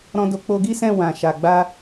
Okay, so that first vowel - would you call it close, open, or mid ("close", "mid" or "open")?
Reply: mid